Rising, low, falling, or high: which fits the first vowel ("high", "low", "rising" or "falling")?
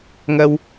high